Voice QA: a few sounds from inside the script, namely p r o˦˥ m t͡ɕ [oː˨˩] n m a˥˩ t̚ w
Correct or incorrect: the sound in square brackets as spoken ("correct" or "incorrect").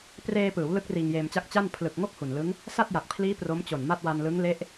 incorrect